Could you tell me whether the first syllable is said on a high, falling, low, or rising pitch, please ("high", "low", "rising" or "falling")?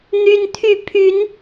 high